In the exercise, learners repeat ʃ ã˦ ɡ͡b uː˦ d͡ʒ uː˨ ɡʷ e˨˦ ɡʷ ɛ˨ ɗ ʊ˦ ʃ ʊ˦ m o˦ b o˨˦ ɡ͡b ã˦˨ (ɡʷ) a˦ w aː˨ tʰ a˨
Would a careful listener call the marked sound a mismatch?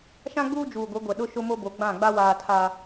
yes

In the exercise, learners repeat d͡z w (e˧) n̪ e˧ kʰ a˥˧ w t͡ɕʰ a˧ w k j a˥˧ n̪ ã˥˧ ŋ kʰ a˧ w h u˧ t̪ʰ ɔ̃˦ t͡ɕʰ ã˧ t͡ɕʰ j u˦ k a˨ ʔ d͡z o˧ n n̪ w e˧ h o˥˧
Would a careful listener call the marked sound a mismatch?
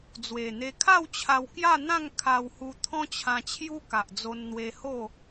yes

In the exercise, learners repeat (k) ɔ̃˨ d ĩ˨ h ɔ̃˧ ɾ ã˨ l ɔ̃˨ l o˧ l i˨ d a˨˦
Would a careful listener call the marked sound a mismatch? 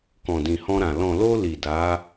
no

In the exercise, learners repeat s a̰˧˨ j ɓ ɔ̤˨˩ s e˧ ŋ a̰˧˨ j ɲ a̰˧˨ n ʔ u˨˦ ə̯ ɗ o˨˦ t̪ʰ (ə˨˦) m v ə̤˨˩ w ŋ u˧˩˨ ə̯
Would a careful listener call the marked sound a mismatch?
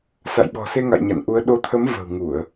no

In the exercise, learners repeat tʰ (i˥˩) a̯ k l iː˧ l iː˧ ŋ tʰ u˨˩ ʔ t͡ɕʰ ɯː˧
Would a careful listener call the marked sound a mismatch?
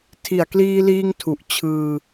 yes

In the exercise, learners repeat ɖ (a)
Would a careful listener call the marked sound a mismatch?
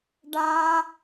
no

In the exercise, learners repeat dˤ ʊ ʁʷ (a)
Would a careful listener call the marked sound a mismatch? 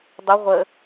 yes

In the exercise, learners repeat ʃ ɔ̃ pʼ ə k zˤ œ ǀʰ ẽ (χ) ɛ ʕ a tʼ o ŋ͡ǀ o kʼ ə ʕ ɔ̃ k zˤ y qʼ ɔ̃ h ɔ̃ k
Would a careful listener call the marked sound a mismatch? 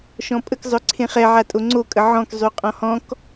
no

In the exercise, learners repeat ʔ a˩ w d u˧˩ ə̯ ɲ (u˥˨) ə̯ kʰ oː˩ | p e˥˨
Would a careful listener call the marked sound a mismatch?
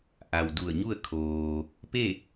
no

